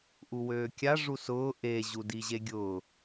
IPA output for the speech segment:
ʔuwøːkʲa ʐusʊː ʔe ʑudiʑeɡʲʊː

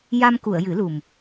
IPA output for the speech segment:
ja˧mku˨˩˨ə̯ jɨ˨˩˦lu˨˩m

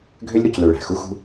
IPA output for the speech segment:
ɡʱø˥lʲ ɾu˧clø˧ɭæ̤˩ xu˥xṳ˥

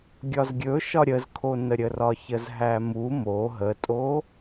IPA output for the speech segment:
ɡʲɒzɡʲɵʃɒ ɾʲəzkʰonəɾʲə rɒçəzɦæmu mo ɦətʼo

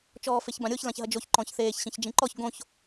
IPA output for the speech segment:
t͡ʃɔːfeçbãɾʲoç lãçɦɐd͡ʒoç ǃɔ̃çθeːç ɕĩçd͡ʒĩǃɔç ɡõç

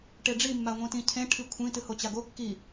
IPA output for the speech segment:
ʈeɖ͡ʐimːa ŋʷĩtĩcʰẽ ʈʰikʷʰĩ tɨhot͡ɕaɡo kːi

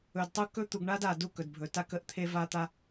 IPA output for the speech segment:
ɵ˨dtˤu˦ kɵ˦t̪u˨ɡ ɳa˦d a˨ du˦kɵ˨dbʱɵ˨ta˦k ə˦ʔt̪ʰe˦ va˦t̪a˦

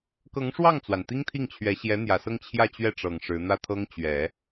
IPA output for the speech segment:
kɤ˧˥ŋʂwɑ˥˩ŋt͡swa˩n t̪i˥ŋt̪ʰi˥˩ŋt͡ɕʰɥɛ˧˥ ɕjɛ˧˥n̪jä˨˩sɤ˥˧ŋ t͡ɕʰjä˥˧t͡ɕɥɛ˥˩ʈ͡ʂɤ˨˩ŋ ʂɻ̩˧˥n̪ä˥t̪ʰɤ˥ŋ t͡ɕɥɛ˨˩˦

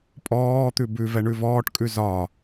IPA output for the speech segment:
pʼɔːt̪ʉ bʉ vɛɳʉvɔːʈkʼʉ zɒ

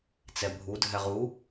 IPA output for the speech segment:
t͡sɛbʱudʱɛ ʁu

